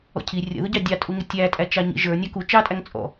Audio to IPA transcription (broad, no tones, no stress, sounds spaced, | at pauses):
ɔ̰ cʰ i rʲ ə̰ ð ʊ ɟ ɑ dʲ ɑ tʼ u ŋ ɪ tʲ æ tʼ æ t͡ʃ ɑ ɲ ḭ ʒ ə˞ nʲ ɑ k u t͡ʃ ɑ tʼ æ ŋ t͡sʼ ɔ̰